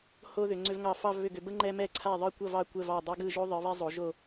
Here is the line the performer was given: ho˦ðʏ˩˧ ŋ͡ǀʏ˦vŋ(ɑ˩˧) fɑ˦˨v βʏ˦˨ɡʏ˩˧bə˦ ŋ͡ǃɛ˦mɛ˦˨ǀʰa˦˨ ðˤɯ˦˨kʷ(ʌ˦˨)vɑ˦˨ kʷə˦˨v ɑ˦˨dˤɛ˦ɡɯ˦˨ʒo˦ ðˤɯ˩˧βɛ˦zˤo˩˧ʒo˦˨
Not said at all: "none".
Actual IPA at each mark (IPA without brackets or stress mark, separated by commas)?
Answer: ɑ˦˨, ʌ˦˨